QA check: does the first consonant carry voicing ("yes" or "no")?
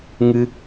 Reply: yes